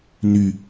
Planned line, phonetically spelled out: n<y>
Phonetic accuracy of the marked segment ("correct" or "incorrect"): correct